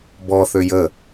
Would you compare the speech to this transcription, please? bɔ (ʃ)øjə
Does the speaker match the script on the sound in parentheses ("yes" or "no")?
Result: no